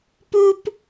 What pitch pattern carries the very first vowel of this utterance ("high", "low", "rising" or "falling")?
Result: high